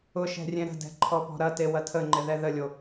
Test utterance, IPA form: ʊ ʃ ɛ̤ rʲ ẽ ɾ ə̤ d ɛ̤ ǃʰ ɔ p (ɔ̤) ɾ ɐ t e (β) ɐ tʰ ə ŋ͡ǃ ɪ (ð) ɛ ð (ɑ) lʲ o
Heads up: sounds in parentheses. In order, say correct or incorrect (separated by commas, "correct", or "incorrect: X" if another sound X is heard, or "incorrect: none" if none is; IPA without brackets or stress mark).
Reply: correct, incorrect: w, correct, incorrect: ə